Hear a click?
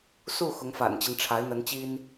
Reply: no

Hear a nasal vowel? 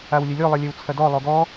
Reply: no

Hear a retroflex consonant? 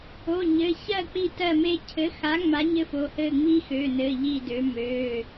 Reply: no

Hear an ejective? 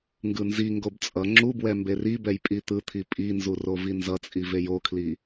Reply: yes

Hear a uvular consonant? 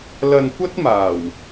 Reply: no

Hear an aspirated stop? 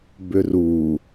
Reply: no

